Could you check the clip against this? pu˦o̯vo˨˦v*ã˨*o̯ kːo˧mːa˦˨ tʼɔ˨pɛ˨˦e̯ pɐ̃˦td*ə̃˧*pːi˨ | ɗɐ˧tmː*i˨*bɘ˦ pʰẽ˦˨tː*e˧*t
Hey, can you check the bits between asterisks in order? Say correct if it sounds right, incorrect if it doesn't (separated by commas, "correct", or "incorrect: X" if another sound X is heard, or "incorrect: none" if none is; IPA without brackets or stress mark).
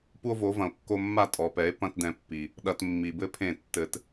incorrect: ɐ̃˨, incorrect: ɛ̃˧, correct, incorrect: ɘ˧